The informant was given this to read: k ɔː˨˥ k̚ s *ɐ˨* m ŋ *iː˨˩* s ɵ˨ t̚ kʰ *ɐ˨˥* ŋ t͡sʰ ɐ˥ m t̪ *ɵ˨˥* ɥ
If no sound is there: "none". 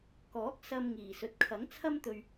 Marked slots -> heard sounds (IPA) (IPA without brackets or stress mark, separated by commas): ɐ˧, iː˨˩, ɐ˨˥, ɵ˧